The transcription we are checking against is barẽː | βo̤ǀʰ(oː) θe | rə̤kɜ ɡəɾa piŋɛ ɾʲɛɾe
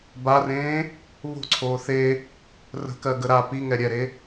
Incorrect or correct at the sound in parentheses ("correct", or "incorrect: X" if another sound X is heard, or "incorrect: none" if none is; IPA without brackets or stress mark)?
correct